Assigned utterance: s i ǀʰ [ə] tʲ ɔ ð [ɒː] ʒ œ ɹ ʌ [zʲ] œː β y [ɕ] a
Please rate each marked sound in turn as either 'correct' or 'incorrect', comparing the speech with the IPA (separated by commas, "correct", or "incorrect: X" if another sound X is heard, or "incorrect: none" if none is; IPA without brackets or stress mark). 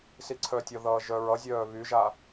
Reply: incorrect: œ, incorrect: ʌː, correct, incorrect: ʒ